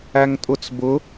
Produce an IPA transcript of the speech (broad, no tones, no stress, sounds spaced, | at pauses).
æ ŋ tʼ ʊ t͡s b ʊ